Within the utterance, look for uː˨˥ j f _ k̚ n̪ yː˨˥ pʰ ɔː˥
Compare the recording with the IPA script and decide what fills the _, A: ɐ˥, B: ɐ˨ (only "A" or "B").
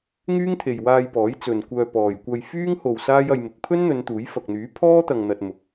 B